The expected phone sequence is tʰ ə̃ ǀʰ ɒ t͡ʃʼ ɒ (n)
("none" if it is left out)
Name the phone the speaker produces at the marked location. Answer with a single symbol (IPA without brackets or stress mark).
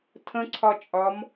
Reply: m